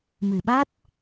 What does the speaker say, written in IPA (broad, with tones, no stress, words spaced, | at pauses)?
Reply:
mɨ˨˩ɓa˦˥t̚